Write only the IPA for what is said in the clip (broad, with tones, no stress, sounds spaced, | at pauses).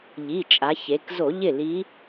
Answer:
ʎ i˩˧˩ t͡ʃʼ a˩˧ ç e˩˧ k z o˧˩˧ ʎ ɪ˥˩ l i˧˥